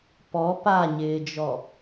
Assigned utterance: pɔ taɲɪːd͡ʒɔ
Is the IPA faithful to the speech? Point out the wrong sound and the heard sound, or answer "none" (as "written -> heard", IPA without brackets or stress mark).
t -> p